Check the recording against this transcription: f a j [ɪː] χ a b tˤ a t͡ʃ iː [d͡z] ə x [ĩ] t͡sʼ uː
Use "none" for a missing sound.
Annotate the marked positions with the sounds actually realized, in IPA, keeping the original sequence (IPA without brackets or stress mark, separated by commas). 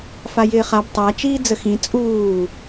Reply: ɪː, d͡z, ĩ